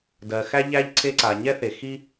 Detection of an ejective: absent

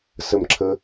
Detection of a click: present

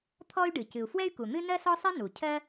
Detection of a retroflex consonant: present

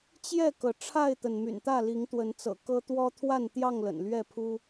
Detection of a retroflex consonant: present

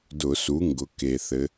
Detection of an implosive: absent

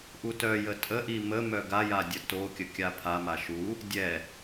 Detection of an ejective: present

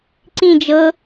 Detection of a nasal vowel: present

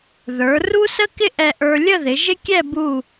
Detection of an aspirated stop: absent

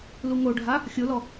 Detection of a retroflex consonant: present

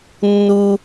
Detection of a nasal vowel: absent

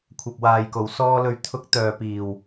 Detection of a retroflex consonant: absent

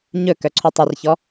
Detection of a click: present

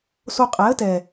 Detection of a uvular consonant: present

